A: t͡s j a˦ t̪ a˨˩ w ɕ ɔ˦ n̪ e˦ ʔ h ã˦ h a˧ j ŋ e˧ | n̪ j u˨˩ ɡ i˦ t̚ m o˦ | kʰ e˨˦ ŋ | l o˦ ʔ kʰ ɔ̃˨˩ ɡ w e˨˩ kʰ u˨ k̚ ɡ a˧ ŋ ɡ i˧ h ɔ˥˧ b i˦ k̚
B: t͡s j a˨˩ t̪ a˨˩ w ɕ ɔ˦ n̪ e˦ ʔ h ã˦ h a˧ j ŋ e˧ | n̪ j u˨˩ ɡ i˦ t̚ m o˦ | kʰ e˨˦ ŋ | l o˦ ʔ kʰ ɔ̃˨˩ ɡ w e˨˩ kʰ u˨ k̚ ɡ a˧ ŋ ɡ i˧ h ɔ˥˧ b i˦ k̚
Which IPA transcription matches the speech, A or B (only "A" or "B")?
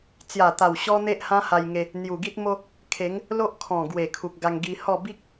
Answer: B